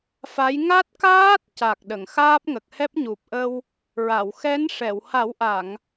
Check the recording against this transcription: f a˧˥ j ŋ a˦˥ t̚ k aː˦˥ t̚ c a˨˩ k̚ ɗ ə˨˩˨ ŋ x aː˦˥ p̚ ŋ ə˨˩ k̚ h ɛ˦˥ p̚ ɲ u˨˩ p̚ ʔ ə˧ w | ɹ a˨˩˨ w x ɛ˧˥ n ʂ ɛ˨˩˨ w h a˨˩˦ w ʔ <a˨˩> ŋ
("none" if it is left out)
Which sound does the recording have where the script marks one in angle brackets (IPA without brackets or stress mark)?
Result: a˨˩˨